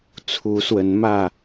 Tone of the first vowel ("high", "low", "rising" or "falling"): rising